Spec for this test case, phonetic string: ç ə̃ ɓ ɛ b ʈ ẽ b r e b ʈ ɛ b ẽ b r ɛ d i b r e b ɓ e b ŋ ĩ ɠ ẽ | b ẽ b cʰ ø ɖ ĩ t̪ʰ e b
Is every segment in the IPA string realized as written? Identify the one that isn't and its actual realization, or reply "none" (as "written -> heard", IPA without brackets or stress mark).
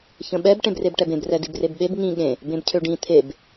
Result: none